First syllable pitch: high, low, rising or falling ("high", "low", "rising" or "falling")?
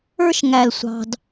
high